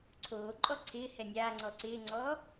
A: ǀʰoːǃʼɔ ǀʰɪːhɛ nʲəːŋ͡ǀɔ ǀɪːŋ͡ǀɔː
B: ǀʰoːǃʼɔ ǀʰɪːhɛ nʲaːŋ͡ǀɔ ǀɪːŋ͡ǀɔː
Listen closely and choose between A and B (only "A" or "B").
B